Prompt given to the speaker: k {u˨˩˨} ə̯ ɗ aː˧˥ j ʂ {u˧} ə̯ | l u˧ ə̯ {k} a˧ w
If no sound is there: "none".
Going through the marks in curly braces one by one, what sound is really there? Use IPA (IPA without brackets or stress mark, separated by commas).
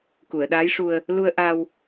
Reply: u˨˩˨, u˧, ʔ